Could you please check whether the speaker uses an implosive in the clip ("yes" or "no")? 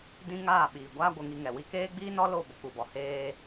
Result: yes